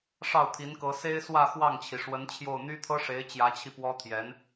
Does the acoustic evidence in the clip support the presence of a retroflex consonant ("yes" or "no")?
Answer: yes